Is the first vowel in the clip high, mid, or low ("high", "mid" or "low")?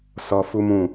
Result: mid